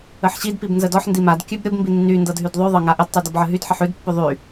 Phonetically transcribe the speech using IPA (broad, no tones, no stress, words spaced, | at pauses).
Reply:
əħɕidpib nzədɔħ ndimad kʲʉb ɾʲɤbmbi nːy ndɤdɦydðˤʉ ðˤɤŋaʔədtˤy dɔbʕəɦydħəħ ʉdpːʉ ðˤy